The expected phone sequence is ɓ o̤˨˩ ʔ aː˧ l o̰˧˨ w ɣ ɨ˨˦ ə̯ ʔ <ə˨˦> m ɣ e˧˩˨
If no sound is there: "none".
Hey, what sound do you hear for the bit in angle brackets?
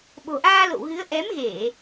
ɛ˨˦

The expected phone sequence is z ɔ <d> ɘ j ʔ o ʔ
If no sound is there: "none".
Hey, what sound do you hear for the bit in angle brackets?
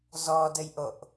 d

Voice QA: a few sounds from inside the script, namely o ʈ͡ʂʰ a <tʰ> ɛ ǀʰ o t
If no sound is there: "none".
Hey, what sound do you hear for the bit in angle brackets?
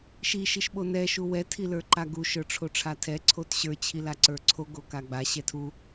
tʰ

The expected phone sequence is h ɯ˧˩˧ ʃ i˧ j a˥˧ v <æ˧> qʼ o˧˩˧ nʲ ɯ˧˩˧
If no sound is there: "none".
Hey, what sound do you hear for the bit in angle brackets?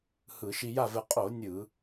ɛ˧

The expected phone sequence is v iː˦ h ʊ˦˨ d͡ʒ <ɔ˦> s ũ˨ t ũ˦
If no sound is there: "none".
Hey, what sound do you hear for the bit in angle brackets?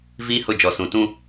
ɔ˨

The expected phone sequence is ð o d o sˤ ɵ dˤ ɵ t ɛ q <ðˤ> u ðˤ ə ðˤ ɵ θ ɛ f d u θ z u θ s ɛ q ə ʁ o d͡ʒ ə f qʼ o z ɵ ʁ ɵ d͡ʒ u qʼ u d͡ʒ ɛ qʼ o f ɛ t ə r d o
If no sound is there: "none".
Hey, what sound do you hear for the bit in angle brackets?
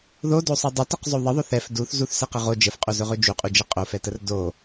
zˤ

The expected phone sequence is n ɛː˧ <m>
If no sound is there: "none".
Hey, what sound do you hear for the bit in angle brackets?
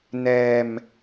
m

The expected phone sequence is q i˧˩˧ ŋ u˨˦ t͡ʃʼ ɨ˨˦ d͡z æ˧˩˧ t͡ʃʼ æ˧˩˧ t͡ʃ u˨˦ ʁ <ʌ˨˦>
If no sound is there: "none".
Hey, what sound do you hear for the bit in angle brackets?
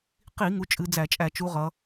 ʌ˨˦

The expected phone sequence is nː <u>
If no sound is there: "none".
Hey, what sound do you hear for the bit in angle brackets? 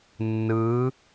ɯ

